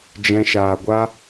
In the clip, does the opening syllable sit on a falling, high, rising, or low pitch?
high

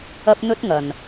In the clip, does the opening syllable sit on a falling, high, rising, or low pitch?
high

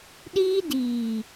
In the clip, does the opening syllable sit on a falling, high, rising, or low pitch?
high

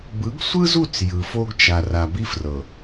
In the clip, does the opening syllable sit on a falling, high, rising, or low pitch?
rising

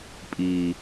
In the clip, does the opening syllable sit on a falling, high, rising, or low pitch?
low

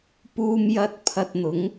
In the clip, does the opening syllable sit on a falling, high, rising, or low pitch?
high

